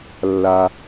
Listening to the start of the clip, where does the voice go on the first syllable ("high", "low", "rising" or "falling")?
low